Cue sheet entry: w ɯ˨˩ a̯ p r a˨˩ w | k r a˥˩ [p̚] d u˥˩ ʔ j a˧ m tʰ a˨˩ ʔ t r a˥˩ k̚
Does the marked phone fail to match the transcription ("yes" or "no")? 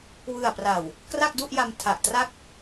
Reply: yes